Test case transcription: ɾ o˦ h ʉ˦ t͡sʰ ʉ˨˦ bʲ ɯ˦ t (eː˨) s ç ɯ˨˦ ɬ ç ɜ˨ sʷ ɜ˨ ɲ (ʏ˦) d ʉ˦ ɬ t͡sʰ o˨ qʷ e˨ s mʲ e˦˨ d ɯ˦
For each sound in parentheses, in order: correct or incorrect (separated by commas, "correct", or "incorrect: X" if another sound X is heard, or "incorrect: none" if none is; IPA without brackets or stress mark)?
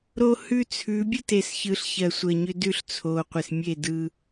incorrect: e˨, correct